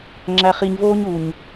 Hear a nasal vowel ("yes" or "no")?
no